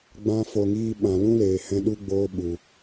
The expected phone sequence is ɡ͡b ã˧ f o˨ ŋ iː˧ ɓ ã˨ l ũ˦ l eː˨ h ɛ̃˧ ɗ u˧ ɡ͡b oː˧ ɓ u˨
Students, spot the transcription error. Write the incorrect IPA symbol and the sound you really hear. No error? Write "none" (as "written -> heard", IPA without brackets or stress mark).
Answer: none